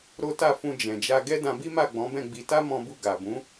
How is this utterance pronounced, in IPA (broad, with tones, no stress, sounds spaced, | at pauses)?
ɾ o˦ t a˦˨ f ũ˧ d͡ʒ ɛ̃˨ d͡ʒ a˧ ɡ ɛ˦ d ã˧ b i˦ m a˦˨ ɡ͡b ɔ̃˨˦ b ɛ̃˦˨ ɡ͡b i˧ t a˦ m ɔ̃˧ b u˧ ɡ a˨ b ũ˨˦